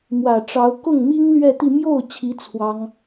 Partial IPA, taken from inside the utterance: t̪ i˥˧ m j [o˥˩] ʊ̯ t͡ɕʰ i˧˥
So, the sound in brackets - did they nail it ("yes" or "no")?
yes